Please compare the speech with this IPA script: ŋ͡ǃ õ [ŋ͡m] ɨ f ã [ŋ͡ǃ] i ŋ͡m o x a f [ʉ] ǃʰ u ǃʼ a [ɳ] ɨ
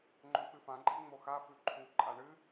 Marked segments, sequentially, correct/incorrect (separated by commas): incorrect, incorrect, correct, correct